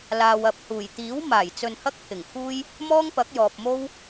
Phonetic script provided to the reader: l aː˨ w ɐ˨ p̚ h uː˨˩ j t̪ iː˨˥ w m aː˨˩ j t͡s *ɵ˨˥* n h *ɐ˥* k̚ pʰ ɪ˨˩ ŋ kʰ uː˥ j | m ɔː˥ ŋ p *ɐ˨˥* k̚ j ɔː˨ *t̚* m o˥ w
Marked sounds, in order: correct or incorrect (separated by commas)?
incorrect, correct, correct, incorrect